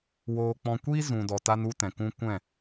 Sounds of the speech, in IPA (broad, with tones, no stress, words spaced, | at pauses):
woː˧k͡pɔ̃˧kʷiː˦ zũ˨dɔ˨ ta˧nu˧ tɛ̃˨kũ˦ kʷɛ̃˦˨